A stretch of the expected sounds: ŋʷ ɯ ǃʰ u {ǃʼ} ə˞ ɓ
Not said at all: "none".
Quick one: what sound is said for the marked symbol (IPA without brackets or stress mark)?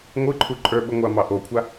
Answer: ǃʼ